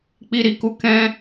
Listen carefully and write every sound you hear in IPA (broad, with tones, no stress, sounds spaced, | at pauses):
k͡p i˦ ɾ i˧ k u˦ k ɛ̃˦